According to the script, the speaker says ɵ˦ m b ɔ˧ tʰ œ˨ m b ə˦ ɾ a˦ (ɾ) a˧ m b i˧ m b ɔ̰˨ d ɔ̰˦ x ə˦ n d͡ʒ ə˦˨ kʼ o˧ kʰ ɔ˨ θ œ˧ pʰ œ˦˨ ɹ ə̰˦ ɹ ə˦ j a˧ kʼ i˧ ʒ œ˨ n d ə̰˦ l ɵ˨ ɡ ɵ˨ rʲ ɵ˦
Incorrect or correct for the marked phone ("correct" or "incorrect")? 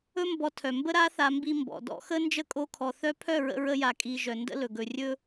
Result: incorrect